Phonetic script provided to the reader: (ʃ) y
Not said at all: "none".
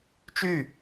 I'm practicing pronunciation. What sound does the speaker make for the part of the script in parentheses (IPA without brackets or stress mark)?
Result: t͡ʃ